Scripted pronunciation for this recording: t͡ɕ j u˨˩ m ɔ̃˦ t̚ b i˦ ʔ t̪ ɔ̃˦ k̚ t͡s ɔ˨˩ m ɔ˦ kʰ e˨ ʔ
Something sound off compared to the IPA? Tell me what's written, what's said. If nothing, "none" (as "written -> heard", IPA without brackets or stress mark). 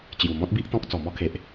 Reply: none